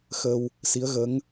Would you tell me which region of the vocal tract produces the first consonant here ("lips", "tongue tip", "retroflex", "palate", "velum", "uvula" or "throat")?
velum